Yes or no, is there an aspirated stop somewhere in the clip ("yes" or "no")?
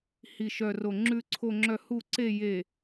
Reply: yes